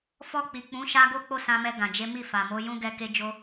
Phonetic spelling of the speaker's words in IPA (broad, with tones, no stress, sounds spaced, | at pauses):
f ɔ˧ k͡p i˨ k͡p ũ˨˦ ʃ a˦ ɡ o˦ k͡p o˦˨ s ã˧ m ɛ˧ ɡ ã˨ d͡ʒ e˨˦ m i˦˨ f a˨ m o˨˦ j ũ˦ ɡ ɛ˦ k e˦ d͡ʒ o˦